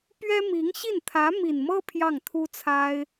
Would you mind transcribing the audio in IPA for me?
p ɥ ɛ˥ m i˧˥ ŋ ɕ i˥˩ n t̪ʰ ä˧˥ m i˨˩ n m ɤ˥ pʰ j ɑ˥˩ ŋ t̪ʰ u˥ t͡sʰ a˥ ɪ̯

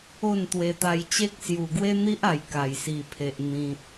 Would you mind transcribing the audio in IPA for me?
o˥˧ n t̪ w e˧ t̪ a˧ j t͡ɕ e˦ k̚ s j u˨˩ ɡ w e˦ n̪ i˦ ʔ a˨˩ j k a˨˩ j s i˨˩ pʰ e˨ ʔ n̪ ĩ˨ t̚

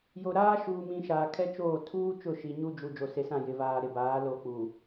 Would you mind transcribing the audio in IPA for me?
j o˨ ɾ aː˦ ʃ uː˨ m ĩ˨ ʃ aː˨ kʰ ɛ˦ t͡ʃ oː˦˨ tʰ uː˦ t͡ʃ ʊ˦˨ ʃ i˨ ɲ u˦ d͡ʒ u˨ d͡ʒ o˨ s e˨ s ã˦˨ j ɪ˨ v aː˨ ɾ ɪ˨ b aː˨˦ l o˨ k͡p u˨

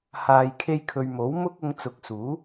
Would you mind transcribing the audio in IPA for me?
h aː˨ j kʰ e˧ j kʰ ɵ˨ ɥ m o˨˥ w m ʊ˥ k̚ ʊ˧ ŋ t͡s ʊ˨˥ k̚ s uː˨˥

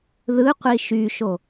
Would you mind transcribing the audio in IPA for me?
ð ɯ qʷ i ʃ y ʃ o

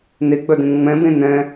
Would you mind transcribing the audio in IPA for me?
n e ɡ͡b œ d ẽ n ŋ͡m ɛ̃ b ẽ n ɛ̃

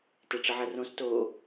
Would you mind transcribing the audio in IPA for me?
t e ʈ͡ʂ ə ʕ ɐ r õ s t o

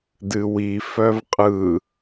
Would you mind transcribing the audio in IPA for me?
d ɨ w i f œ v qʼ ɯ

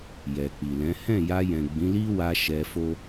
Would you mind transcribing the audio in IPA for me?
j ɛ˨ k͡p i˨ l ɛ̃˨˦ h ɛ̃˦˨ j a˧ j ɛ̃˨ ɡ͡b ĩ˨˦ l i˦ w a˧ ʃ ɛ˧ f o˦

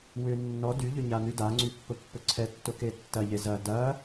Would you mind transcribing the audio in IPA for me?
w ʏ nː ɔ d y ʎ ʏ ɲ a n y d a ŋ͡ǀ y pː ʊ pː ʊ ǀʰ ɛ tː ʊ k e tː ɐ ʎ e z ɐ d ɐ

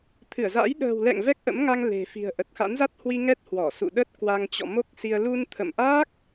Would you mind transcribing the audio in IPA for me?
t̪ʰ ɨ˧˩ ə̯ z a̰ː˧˥ j ɗ ə̤ː˨˩ w l ɛ̰˧˨ ŋ v ɛ˦˥ k̚ ʔ ə̰˧˥ m ŋ a˧ ŋ l e̤˨˩ f i̤˨˩ ə̯ ʔ ə˨˩ t̚ x a̰˧˥ n z a˦˥ t̚ h w i˧ ŋ ɛ˦˥ t̚ h w ɔ˧˩ s ṵ˧˨ ɗ ə˦˥ t̚ k w a˧ ŋ t͡ɕ ɔ̰˧˨ m o˦˥ k̚ s i˧ ə̯ l u˧ n t̪ʰ ə̰˧˨ m ʔ aː˦˥ k̚

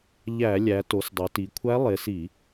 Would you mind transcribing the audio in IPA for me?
ʎ æ˧˩˧ lʲ æ˩˧ t o˩˧ s dˤ o˩˧ t i˩˧ kʷʰ æ˧˥ lˠ e˩˧ s i˧˩˧

